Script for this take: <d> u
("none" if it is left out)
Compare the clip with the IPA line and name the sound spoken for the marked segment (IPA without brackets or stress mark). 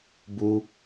b